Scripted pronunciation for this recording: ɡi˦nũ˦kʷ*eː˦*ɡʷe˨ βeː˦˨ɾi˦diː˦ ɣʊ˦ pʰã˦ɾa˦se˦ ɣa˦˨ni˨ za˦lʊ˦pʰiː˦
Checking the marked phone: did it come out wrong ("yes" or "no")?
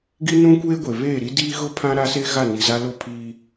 no